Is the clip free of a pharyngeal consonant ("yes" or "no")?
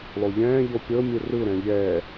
yes